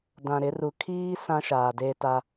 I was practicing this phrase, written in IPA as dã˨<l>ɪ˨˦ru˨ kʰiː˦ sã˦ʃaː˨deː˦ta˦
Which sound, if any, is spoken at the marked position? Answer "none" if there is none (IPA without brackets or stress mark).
ɾ